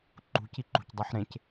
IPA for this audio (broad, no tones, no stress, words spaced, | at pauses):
ǃṳci ǃṳcdˤɑħ ɾẽc